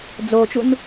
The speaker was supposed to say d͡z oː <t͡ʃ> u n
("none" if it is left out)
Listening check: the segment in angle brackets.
t͡ʃ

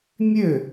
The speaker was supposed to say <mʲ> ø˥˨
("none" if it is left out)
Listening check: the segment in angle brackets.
mʲ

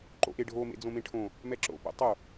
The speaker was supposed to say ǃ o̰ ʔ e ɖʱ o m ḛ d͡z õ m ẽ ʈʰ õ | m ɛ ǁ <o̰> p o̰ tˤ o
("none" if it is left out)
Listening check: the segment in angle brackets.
o̰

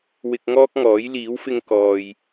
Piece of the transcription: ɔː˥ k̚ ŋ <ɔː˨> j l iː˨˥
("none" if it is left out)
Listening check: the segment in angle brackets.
ɔː˨˥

